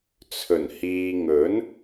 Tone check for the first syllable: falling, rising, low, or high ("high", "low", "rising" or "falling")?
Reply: low